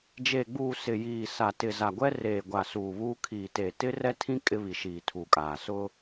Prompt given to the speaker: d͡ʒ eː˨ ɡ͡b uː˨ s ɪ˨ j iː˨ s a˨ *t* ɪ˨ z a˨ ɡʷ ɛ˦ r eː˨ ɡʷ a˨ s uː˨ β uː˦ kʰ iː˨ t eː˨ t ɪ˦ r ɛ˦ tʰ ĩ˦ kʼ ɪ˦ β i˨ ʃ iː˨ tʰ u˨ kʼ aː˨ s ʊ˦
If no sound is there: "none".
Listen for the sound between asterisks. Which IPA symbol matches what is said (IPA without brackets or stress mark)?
t